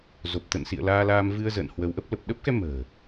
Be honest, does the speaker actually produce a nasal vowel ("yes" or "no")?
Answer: no